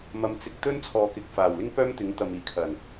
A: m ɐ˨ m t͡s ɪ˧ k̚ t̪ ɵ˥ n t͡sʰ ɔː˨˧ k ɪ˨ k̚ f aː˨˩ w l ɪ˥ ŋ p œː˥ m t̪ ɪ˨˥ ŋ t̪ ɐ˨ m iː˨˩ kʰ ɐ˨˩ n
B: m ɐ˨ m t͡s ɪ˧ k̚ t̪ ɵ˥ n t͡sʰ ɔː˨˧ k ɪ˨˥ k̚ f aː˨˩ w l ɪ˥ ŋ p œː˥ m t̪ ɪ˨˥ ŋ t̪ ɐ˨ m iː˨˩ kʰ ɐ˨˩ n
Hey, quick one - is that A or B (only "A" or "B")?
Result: A